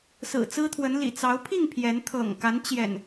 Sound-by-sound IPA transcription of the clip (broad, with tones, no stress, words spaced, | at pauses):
sɹ̩˨˩t͡sɹ̩˦t̪ʰwə˨˦n lḭ˨˩t͡sɑ˨˦ʊ̯ pʰi˥˨ŋ pʰjɛ˨˦n t̪ʰɤ̰˨˩ŋka˨˦n t͡ɕjɛ̰˨˩n